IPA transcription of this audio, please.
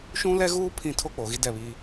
ʃũ˦lɛ˦ɣuː˦ pʰĩ˦˨ tʰo˦k͡poː˨ɣi˦ dɛ˦˨βiː˦

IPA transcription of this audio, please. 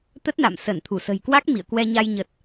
t̪ə˦˥t̚na̰˧˨m səː˧˩nt̪ʰu˧˩sə̤˨˩jkwa˦˥k̚ mḭ˧˨ə̯kwɛ˧ɲa˧j ɲə˨˩t̚

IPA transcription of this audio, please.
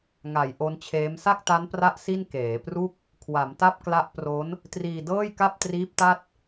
ŋa˩˦j ʔo˦˥nt͡ɕʰeː˦˥m sa˥˩k̚ta˦˥npra˦˥ʔ si˥˩n keː˩˦pru˥˩k̚ | kʰwa˩˦mta˥˩p̚kla˦˥ʔpro˦˥n | triː˧dɤː˥˩jka˥˩p̚ triː˦˥p̚ta˥˩t̚

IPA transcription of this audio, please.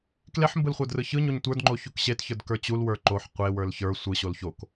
kleħmbɯl χʷə˞drɯçɯɲoɲ tʷə˞dŋ͡ǃo çukɕetçə˞d kə˞t͡ɕulwə˞ ǃoħ qʷewə˞l çə˞ sʷɯɕol çok

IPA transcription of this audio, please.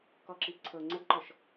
kɔǁipǀʰɤ ŋ͡ǀəɡǃɔʃ

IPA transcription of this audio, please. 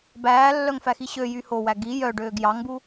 bæːlːœŋfæxi ɕøjy howæ ɡi jœɖøːɡ jɑŋbu

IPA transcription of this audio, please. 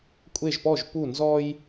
kʷʼe˥˧ʒpɔ˥˧ʒpu˥˧ nzɔ˥j

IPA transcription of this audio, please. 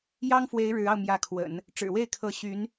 jɑ˥ŋfwe˧˥ɪ̯ ɻɻ̩˧˥ɑ˧ʊ̯ mjä˧˥kʰwə̰˨˩˦n | ʈ͡ʂɻ̩˨˩we˥˩ɪ̯kʰɤ˧˥ ɕy˧˥n

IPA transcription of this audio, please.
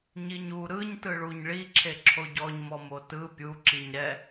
ɲiɲu ɾɯɲ tɯɭuɲɭi ǁʰeǁʰoɟɔɲ mɔmotɯ pʲu ǁiɲɾɛ

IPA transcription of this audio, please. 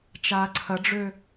t͡ʃaːǀʰɐɖ͡ʐøː

